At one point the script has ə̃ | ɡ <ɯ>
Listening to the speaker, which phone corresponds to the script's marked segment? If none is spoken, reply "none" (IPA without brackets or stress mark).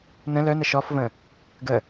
ə